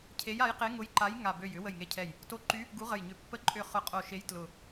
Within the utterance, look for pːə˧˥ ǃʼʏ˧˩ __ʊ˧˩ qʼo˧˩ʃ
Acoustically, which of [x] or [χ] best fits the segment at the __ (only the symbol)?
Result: χ